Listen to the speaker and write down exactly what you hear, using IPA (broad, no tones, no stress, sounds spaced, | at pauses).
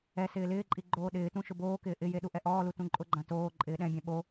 ɛ s ɪː l ɪː ǃʼ i ɡ͡ǃ oː ɗ ɪː t ũ ʃ ʊ b oː k ɪː ʔ ɪ j e ɗ u ʔ ɛ ʔ ɔː l u t ũ ǃʼ ʊ ɡ͡ǃ ã t oː ǃʼ ɪː ɗ ɛ̃ bʲ ɛ̃ ɓ o